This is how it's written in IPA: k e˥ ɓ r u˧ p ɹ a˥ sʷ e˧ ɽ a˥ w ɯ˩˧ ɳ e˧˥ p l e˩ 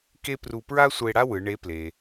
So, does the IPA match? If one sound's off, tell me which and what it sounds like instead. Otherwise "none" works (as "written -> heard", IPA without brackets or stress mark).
ɓ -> p